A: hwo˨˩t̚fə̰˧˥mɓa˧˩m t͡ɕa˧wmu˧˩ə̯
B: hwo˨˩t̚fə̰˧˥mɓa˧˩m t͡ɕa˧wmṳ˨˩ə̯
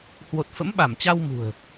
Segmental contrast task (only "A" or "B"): B